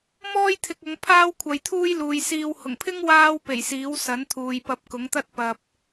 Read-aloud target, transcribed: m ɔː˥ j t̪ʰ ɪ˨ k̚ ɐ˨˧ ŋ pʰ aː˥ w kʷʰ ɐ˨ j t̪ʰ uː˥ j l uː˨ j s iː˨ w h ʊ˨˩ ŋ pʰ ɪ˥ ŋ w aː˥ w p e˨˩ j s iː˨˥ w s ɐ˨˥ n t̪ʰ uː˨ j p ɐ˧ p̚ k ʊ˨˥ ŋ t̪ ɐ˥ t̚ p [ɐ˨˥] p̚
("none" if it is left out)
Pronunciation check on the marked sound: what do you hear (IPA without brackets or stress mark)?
ɐ˨